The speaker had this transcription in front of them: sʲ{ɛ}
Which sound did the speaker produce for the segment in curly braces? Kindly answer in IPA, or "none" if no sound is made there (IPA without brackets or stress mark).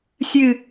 ɨ